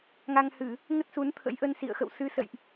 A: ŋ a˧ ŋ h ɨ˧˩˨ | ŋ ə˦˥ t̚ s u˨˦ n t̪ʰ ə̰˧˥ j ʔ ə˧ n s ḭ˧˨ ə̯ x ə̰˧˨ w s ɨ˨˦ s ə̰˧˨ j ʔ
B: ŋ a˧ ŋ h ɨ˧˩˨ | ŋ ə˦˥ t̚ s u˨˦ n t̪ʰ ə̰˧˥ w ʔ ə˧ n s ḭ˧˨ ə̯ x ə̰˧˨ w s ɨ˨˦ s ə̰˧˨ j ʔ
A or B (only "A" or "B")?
A